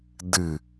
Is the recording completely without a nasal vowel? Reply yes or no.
yes